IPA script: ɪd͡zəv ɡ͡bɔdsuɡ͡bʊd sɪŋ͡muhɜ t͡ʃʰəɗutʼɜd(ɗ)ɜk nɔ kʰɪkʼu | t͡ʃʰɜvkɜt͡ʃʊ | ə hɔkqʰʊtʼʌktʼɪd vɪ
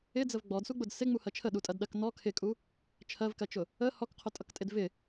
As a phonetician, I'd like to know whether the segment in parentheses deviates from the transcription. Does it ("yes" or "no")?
no